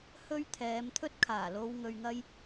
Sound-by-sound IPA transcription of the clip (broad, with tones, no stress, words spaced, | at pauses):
hɵ˧ɥ t̪ʰɛː˨˧mt̪ʰɵ˥t̚kʰaː˨˩lo˧w ŋɵ˧ɥŋɐ˥j